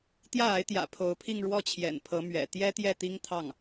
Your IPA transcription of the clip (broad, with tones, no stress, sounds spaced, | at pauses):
t̪ j ä˥˩ a˧˥ ɪ̯ t̪ j ä̰˨˩ pʰ o˧˥ ʊ̯ pʰ i˥˧ ŋ ɻ w ɔ˥˩ t͡ɕʰ j ɛ̰˨˩ n pʰ ɤ˧˥ m ɥ ɛ̰˨˩ t̪ j ɛ˥ t̪ j ɛ˥˩ t̪ i˥ ŋ t̪ʰ ɑ˥˩ ŋ